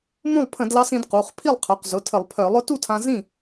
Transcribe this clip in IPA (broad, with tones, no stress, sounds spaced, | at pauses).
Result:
m ũ˥˩ lˠ pʰ ə̃˧˩˧ d l ɑ˧ s ĩ˩˧ d q u˩˧˩ χ pʰ i˥˩ lˠ qʰ œ˩˧˩ q z ʊ˩˧˩ tʰ ə˧˩˧ lˠ pʰ œ˧˩˧ lˠ ʊ˦˥ t u˥˩ tʰ ã˧ z ĩ˥˩